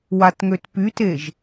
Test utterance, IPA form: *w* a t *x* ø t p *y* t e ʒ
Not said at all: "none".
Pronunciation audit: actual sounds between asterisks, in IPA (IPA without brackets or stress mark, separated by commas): w, ŋ, y